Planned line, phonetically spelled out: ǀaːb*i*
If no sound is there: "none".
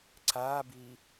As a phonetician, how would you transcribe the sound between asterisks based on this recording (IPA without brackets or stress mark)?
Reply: i